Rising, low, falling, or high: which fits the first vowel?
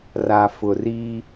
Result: low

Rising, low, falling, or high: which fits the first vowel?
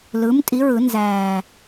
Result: rising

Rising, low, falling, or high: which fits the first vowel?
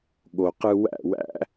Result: low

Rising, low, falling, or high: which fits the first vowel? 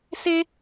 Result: high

